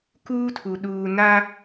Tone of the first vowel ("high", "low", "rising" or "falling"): high